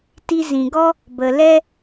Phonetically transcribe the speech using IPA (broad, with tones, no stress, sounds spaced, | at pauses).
t i˧ z ĩ˨ ɡ ɔ˦ | b ə˨ l ɛ˦